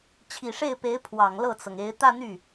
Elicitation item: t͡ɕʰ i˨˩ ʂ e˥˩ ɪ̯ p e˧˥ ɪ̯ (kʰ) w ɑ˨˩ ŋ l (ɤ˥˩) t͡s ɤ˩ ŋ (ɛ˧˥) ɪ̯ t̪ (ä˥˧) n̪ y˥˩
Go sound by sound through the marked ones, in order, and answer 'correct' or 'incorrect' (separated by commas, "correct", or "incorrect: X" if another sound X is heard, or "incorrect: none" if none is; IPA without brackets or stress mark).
incorrect: pʰ, correct, incorrect: e˧˥, correct